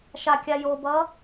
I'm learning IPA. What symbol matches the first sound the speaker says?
ʃ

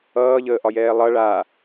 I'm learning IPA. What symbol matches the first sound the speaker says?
ʌː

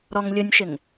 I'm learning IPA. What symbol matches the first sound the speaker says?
ɾ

